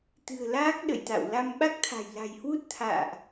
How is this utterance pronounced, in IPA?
t̪ ɨ̤˨˩ ə̯ l aː˦˥ k̚ ɗ ə̰˧˨ j t̪ a̰˧˨ w l a˧ m ɓ a˦˥ k̚ t̪ʰ a̤˨˩ j l a̤˨˩ j h w u˦˥ t̚ t̪ʰ a̰ː˧˨ ʔ

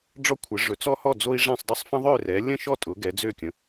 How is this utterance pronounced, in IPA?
ɖ͡ʐ ɔ˦ kʷʰ ə˩˥ ʐ ɵ˩˥ t͡s ɔ˦ h ɔ˥˩ d͡z o˦ i̯ ʐ ɛ̃˥˩ sˤ dˤ ʊ˦ sˤ f ə̃˦ ðˤ ø˥˩ r ɛ˩˥ lʲ ə̃˥˩ ʃ ɔ˥˩ tʼ ʊ˩˥ ɡ ɛ˩˥ d͡z ø˥˩ kʲ ə̃˩˥

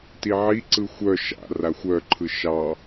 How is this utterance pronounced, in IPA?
t i ʕ i ǀ ɯ xʷ œ ʃ a̰ r a xʷ œ ǃʰ ɯ ʃ ɑ

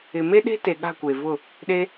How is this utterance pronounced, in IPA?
ɪ˨ m e˦ ɗ e̤˦ t e˨ ɠ a̤˦˨ kʷ e˨ v ʊ˦˨ | ɗ e˧

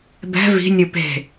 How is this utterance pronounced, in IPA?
b ɛ̤ v i̤ nʲ ɯ p e̤

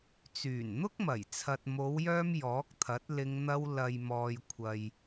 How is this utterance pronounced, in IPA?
t͡s yː˨˩ n n̪ ʊ˥ k̚ m ɐ˨˩ j t͡sʰ ɐ˨ t̚ m o˨˧ w j œː˧ m j ɔː˨˥ k̚ t̪ʰ ɐ˨˥ t̚ l ɪ˧ ŋ n̪ ɐ˧ w l ɐ˨ j m ɔː˨ j kʷʰ ɐ˨ j

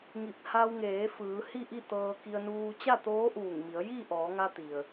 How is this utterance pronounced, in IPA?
ŋ i˧˩ p̚ h a˧ w ŋ eː˩˧ f ɯː˩˧ h i˥˨ ʔ i˥˨ t̪ ɤː˧ k i˧ ə̯ n uː˧ t͡ɕ a˥˨ t̪ oː˧˥ ʔ uː˧˩ ŋ m i˩˧ ə̯ j i˥˨ ʔ ɔː˩˧ ŋ a˧ t̪ i˩ ə̯

